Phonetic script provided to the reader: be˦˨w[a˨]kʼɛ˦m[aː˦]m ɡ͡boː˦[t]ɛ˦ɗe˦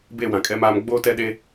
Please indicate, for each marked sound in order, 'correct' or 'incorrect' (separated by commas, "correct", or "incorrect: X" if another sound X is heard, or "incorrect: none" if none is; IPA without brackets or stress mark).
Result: incorrect: ã˨, correct, correct